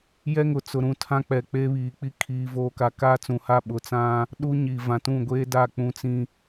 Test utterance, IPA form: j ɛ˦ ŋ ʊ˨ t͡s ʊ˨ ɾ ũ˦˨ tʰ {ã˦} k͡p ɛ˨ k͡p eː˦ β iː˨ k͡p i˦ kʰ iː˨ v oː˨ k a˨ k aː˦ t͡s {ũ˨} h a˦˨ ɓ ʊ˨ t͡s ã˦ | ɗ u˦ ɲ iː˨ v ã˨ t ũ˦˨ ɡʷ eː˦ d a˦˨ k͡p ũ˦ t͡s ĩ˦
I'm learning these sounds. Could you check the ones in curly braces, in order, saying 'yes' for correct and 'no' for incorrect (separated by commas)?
yes, yes